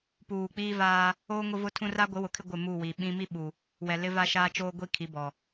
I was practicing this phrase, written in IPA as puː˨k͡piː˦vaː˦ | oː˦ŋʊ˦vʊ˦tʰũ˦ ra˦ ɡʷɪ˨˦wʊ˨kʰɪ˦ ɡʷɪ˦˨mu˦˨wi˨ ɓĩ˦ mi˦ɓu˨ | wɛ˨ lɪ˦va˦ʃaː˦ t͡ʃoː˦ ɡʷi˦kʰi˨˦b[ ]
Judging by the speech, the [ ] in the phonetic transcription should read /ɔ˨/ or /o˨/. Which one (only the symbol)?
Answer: ɔ˨